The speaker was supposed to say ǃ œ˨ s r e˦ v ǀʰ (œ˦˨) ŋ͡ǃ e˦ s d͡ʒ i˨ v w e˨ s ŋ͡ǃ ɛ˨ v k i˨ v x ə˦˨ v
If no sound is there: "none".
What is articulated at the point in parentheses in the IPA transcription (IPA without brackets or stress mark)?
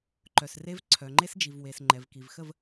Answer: œ˨